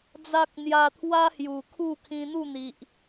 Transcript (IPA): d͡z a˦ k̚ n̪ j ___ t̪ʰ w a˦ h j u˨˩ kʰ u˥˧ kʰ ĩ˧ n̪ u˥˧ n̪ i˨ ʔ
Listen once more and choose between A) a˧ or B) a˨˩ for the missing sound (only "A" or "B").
A